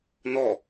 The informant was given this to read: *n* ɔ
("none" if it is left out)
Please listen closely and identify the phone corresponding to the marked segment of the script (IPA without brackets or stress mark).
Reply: n